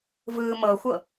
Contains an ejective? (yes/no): no